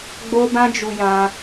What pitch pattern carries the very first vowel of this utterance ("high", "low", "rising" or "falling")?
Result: high